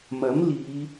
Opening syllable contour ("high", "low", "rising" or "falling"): rising